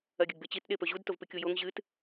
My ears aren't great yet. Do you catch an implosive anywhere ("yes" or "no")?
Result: yes